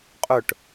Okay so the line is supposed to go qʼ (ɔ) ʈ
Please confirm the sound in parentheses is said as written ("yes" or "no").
no